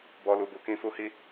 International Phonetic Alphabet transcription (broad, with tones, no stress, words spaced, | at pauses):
bɔ˧lu˨bu˧ kĩ˧fu˧hi˦